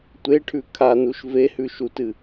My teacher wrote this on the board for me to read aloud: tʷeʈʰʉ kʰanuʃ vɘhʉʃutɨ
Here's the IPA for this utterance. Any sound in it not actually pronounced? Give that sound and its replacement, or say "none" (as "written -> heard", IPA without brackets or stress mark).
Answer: ɘ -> e